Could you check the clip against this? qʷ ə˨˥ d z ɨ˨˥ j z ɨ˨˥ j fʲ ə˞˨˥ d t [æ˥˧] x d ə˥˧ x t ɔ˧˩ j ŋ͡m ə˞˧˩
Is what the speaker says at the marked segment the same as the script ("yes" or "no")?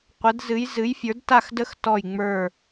no